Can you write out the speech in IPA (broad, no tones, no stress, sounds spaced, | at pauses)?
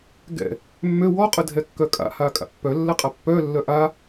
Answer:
ɡ ɛ̰ | mː ø w ɔ qʼ ə dʱ ɛ kː œ kʼ a̰ h a kʼ a̰ pː œ lː ɛ qʼ a pː œ lː œ ʔ a